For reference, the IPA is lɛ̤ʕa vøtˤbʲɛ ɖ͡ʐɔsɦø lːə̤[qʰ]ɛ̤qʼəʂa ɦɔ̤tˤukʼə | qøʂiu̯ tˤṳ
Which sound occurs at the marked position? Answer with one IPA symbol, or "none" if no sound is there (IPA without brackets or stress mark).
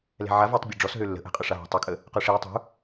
ʔ